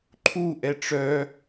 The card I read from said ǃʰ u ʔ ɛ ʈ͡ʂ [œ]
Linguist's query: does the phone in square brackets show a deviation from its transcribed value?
no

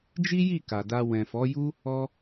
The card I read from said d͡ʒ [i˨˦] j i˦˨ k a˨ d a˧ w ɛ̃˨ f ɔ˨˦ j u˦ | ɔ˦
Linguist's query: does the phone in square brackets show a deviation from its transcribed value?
yes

